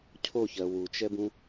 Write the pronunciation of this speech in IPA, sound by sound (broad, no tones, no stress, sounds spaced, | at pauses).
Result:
cʰ o ç ɜ w u t͡ʃ ɛ b ũ